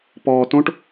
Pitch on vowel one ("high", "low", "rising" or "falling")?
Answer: low